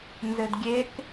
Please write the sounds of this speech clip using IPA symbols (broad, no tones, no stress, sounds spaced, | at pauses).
n z ɘ d ɡʲ e k